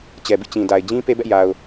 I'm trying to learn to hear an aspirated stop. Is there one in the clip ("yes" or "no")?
no